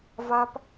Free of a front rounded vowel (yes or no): yes